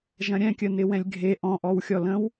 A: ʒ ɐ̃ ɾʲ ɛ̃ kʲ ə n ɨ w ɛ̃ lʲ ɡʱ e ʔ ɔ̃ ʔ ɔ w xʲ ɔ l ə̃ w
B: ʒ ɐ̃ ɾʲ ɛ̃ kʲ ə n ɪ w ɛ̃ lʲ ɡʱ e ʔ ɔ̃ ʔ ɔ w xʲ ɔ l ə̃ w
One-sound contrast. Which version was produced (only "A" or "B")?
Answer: B